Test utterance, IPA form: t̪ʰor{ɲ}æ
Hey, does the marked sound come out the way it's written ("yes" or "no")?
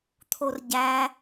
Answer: no